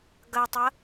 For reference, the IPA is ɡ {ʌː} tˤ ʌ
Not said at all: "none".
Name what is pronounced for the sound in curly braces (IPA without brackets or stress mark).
ʌ